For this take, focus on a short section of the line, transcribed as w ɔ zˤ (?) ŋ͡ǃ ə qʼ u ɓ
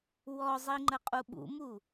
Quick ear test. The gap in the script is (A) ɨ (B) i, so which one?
B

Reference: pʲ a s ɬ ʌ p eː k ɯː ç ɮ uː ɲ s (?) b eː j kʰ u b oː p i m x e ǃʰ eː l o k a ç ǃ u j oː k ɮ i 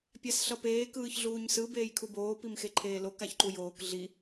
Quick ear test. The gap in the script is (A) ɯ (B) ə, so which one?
A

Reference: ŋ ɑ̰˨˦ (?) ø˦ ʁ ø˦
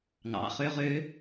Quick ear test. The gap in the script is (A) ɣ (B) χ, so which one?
B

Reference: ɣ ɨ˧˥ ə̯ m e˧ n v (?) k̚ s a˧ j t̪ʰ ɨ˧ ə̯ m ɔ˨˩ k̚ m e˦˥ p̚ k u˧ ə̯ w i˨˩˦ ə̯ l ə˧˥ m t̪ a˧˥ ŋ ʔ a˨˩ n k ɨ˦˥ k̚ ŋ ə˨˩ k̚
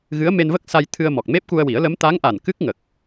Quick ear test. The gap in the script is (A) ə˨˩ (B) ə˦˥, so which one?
B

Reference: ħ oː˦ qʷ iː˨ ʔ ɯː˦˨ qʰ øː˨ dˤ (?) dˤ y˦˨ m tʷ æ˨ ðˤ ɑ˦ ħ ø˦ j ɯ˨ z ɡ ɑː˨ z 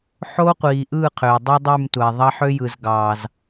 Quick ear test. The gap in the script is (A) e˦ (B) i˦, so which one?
B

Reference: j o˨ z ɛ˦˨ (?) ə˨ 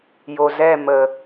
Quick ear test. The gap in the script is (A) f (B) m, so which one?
B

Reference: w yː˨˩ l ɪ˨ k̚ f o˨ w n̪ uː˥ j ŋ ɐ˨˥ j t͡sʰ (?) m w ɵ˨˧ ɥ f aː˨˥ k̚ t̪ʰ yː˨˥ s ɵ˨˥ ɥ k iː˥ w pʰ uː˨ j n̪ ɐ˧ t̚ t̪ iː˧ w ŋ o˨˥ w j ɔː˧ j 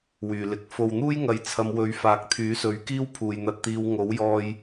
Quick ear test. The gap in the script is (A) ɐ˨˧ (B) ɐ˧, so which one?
A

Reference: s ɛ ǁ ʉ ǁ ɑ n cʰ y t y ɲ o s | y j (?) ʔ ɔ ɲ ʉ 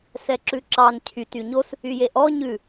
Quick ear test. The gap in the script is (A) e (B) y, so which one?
A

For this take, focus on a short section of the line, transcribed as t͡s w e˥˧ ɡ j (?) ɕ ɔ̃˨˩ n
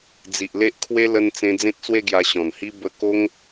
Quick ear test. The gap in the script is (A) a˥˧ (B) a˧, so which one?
B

